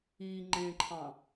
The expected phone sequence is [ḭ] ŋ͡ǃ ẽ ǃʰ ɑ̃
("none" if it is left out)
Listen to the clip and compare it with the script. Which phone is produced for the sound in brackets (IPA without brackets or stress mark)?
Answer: i